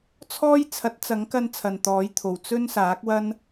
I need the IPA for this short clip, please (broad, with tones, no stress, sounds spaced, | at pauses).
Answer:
t͡sʰ ɔː˥ j t͡sʰ ɐ˨˥ t̚ t͡s ɐ˨˥ ŋ k ɐ˧ n t͡sʰ ɐ˨ n t̪ ɔː˨˥ j t̪ʰ o˨˩ w t͡s ɵ˥ n s aː˨˥ k̚ w ɐ˥ n